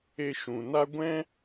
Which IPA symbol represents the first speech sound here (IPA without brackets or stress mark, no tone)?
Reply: e